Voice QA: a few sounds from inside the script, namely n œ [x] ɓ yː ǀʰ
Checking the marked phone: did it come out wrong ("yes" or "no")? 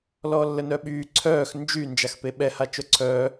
yes